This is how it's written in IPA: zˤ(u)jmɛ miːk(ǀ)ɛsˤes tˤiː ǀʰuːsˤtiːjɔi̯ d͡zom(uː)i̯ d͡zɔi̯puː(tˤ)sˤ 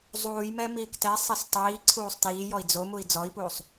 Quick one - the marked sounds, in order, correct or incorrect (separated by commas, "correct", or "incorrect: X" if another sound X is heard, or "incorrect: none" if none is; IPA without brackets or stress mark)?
incorrect: uː, incorrect: t, incorrect: u, incorrect: none